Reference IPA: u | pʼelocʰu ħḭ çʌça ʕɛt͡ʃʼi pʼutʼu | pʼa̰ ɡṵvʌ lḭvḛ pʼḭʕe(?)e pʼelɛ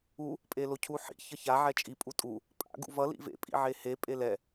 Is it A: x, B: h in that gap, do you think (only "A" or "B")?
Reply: B